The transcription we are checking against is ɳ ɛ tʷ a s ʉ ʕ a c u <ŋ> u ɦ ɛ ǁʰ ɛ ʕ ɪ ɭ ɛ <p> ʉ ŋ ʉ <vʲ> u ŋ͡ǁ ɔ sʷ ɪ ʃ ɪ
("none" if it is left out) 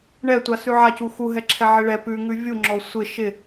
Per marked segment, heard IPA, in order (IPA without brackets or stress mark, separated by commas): x, p, vʲ